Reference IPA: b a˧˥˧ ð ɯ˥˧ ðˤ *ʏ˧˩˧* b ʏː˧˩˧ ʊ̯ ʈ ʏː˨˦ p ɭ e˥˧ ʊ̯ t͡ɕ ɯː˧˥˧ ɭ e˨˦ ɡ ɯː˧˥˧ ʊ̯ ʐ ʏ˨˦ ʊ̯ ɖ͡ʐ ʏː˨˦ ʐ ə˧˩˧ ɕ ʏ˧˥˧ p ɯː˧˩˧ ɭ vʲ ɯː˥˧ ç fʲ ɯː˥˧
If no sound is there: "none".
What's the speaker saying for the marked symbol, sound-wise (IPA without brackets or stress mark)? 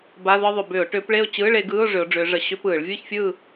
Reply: ʏ˧˩˧